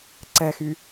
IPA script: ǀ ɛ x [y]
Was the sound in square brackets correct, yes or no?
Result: yes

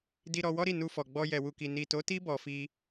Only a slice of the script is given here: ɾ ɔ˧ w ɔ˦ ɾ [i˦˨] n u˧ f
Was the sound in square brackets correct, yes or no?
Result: yes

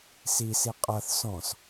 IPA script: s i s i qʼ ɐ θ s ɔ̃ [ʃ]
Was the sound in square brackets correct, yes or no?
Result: no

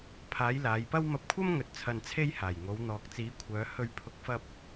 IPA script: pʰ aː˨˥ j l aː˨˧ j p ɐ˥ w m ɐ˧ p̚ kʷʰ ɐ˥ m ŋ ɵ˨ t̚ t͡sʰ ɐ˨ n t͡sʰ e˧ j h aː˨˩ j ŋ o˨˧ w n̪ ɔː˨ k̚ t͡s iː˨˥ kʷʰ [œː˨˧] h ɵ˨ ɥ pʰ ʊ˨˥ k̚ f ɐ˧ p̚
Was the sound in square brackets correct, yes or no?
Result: yes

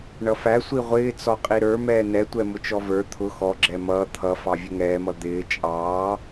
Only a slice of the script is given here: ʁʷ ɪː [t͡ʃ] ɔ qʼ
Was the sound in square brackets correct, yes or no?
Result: no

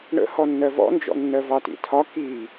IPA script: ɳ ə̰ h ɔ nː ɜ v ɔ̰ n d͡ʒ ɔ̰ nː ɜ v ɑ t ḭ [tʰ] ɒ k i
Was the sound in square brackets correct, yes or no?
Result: yes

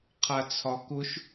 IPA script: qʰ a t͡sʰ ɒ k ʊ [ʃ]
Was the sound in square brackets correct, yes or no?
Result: yes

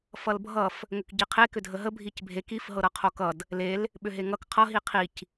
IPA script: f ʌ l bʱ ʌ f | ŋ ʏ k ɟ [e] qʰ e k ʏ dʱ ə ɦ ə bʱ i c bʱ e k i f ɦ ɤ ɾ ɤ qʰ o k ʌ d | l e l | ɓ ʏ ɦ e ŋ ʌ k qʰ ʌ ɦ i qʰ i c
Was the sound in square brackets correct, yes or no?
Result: no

